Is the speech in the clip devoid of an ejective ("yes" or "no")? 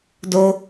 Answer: yes